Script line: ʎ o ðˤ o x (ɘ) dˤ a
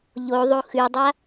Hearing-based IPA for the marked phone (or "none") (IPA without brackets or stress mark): ʉ